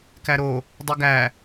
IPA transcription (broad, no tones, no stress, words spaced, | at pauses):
kæɾo | dˤiɡæ